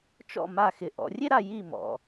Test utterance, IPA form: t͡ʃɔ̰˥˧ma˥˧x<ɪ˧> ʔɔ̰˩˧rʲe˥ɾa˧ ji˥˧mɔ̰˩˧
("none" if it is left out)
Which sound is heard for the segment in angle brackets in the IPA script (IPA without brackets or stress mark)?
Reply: ɪ˧